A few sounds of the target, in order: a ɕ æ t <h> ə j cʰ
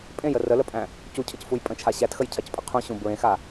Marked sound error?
yes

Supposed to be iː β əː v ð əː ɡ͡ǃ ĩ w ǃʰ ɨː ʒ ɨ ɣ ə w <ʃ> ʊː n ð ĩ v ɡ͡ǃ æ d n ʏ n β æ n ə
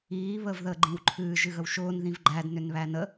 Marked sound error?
no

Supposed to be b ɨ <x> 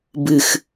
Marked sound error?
no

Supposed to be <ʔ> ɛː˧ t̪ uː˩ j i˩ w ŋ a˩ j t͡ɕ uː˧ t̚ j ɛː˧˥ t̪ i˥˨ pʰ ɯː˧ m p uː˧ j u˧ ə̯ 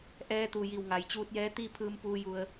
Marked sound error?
no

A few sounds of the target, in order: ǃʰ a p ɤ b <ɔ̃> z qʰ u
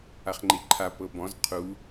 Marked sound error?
no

